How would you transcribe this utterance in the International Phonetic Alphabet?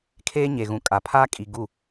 kʰ eː˦ ɲ e˨ ɣ ũ˨ kʼ a˨ pʰ aː˦ kʼ i˨ ɡ u˦˨

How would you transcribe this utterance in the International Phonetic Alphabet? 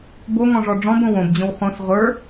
b o ŋ ɔ̃ ʐ ɔ ɖ͡ʐ ɔ̃ b õ w õ b d͡ʑ õ w χ õ s ʁʷ ə˞

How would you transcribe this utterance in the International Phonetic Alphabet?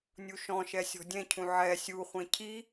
nʲ u ʃ ɔ̃ ʃ ɛ sʲ ɔ̤ dʲ ɛ̃ cʰ ũ ʕ ɛ sʲ u χʷ ɛ̃ cʰ i

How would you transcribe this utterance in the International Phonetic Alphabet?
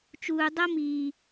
t͡ʃ uː˨ dˤ ɤ˦ m iː˨

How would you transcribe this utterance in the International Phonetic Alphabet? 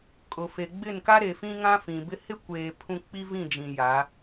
kʼ ʊ˨ f e˨ ɡ͡b ɪ˦˨ n k a˦ ɾ e˨ f ĩ˦ ŋ ã˦ f ĩ˨ b ɪ˦ h ɪ˦ kʷ eː˨ pʰ ũ˦ k͡p i˦ v ĩ˦˨ d͡ʒ ĩ˨ j a˨˦

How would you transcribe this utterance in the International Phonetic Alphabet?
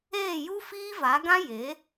eː˦˨ j u˦ f iː˦ v a˨˦ ɡ ã˦ j e˨˦

